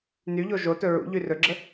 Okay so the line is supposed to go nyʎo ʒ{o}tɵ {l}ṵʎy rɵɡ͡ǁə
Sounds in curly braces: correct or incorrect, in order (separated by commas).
correct, incorrect